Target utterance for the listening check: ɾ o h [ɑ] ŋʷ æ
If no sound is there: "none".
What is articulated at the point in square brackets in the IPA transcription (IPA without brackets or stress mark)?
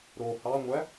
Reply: ɑ